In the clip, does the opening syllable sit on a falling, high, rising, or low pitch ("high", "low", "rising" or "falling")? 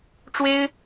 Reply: high